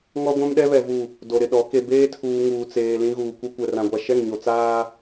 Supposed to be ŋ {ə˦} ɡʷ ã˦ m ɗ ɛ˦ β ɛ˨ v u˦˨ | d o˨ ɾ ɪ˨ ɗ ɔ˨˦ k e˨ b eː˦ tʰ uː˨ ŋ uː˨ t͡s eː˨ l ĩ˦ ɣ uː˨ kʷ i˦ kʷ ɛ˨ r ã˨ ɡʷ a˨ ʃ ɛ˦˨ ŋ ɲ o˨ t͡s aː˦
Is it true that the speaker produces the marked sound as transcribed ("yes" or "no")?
no